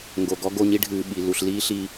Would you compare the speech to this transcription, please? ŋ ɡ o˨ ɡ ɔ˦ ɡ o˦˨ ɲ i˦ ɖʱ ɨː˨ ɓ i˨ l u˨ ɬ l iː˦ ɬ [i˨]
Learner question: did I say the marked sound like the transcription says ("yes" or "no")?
yes